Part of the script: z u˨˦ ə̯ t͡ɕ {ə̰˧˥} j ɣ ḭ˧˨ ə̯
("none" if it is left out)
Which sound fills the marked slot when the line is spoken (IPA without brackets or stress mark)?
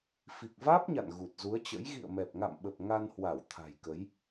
ə̰˧˥